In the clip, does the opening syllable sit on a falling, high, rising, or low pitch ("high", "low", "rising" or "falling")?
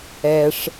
low